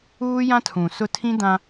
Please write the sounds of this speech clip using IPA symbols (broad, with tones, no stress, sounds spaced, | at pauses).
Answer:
uː˦ j ã˦ tʰ ũ˨ s ʊ˦ tʰ ĩ˦ d ã˦